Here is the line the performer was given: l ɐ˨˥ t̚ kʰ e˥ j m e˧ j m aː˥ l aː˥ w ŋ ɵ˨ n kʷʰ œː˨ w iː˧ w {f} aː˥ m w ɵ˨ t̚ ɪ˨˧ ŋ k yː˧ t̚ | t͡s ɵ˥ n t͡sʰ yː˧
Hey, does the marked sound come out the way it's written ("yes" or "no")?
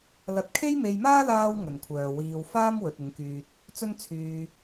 yes